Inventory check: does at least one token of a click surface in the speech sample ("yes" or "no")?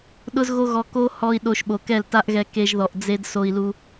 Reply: no